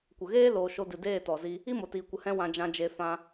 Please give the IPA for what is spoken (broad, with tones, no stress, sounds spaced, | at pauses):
kʷ ə˨ ɣ eː˦ l oː˧ ʃ o˧ d ɨ˨ d eː˦˨ t ɔ˨ z i˧ | i˦ m o˨ t iː˨ kʷ ə˧ h ɛ̃˦ w ã˧ d͡ʒ ã˧ d͡ʒ e˧ f ã˧